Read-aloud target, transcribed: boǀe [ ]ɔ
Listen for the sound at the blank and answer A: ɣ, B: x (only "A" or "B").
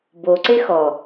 B